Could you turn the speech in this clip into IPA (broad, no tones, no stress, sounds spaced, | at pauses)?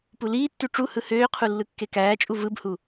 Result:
p u l iː tː y ʈ͡ʂ u h ɯ h øː qʰ u lː ɯ kː e k æː t͡ʃʼ u v ɯ b h u